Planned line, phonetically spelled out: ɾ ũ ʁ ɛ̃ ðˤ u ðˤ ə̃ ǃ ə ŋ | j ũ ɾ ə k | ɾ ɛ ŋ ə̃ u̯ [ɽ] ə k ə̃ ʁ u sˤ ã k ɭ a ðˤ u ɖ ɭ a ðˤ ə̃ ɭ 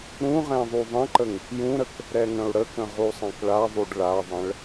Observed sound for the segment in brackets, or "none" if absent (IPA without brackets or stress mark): ɽ